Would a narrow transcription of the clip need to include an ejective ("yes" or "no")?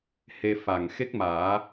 no